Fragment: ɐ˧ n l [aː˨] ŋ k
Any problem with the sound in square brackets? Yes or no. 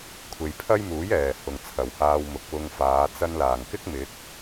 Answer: yes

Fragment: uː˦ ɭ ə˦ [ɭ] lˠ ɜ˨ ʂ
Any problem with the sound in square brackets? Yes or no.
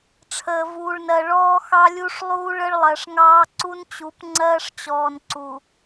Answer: no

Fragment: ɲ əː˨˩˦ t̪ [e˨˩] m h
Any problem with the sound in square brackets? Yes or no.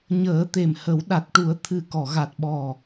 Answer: no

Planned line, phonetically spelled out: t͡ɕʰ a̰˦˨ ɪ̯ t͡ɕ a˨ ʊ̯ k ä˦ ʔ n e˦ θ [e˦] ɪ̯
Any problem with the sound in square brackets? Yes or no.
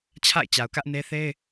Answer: no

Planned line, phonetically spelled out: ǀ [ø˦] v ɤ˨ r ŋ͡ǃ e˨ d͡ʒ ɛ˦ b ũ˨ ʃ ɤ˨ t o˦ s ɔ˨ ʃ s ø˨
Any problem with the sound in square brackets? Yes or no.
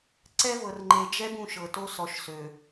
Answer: yes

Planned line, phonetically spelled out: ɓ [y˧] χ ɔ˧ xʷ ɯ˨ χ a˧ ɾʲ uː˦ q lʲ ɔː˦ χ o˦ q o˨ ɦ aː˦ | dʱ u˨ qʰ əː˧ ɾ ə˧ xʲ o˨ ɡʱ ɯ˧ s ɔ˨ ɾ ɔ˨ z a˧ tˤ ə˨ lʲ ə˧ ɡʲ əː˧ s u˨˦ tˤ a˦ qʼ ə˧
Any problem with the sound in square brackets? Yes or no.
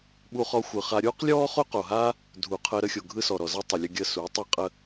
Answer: yes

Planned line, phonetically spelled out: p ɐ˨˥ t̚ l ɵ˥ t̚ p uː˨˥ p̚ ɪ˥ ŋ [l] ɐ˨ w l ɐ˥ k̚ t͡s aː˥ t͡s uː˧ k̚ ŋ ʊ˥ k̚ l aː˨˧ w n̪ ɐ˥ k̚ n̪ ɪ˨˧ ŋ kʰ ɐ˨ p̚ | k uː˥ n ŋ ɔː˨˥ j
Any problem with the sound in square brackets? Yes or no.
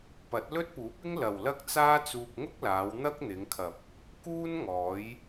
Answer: no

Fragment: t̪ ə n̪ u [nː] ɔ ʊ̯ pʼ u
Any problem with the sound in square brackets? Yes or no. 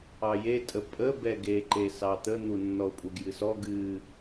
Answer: no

